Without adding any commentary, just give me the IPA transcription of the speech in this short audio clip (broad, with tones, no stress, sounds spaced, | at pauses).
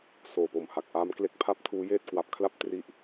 s oː˨˩ p o˨˩ m h a˨˩ k̚ ʔ a˦˥ m k l e˦˥ k̚ pʰ a˥˩ p̚ tʰ uː˦˥ j eː˥˩ t̚ k w a˨˩ p̚ kʰ l a˥˩ p̚ t r i˦˥ ʔ